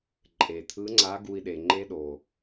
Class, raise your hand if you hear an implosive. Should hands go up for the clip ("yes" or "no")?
yes